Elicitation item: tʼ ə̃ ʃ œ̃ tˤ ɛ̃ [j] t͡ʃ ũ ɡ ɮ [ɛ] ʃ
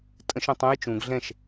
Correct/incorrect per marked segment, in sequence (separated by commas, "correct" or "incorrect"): correct, incorrect